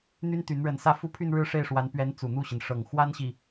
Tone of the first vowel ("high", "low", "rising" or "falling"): high